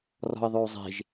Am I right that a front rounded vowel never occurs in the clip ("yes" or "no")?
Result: no